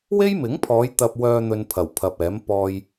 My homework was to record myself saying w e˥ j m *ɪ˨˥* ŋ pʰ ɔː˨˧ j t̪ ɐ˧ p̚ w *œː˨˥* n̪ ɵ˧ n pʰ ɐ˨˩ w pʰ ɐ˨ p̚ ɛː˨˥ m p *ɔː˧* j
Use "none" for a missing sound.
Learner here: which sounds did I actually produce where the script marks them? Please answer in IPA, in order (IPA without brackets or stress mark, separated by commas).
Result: ɪ˨˥, œː˧, ɔː˧